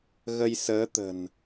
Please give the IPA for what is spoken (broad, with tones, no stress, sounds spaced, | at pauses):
ɣ ə˧ j s əː˨˦ t̪ ə̤˨˩ n